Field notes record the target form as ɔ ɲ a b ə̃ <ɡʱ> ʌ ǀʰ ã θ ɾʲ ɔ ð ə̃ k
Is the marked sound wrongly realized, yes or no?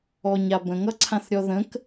yes